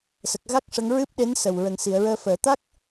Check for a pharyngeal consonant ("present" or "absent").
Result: absent